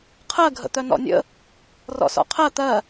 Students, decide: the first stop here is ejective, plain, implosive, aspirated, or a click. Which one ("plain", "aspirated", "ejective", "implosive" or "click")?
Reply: aspirated